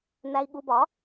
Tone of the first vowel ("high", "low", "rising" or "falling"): low